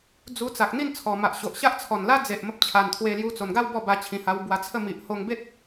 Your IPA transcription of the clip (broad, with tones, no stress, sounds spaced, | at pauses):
d͡z u˧ t͡s a˨ k̚ n̪ i˥˧ n t͡sʰ ɔ˨˩ m a˨ ʔ ɕ o˨ ʔ ɕ a˦ ʔ t͡sʰ ɔ˨˩ n l a˦ d͡z e˨ ʔ m ə˦ p̚ t͡ɕʰ a˨˩ n t̪ʰ w e˧ l j u˧ t͡s o˨˩ n ɡ a˥˧ w b ɔ˥˧ b a˧ t͡ɕʰ ĩ˨˩ h a˧ w b w a˧ t͡sʰ ə˥˧ m i˨ ʔ h o˧ ŋ b e˦ t̚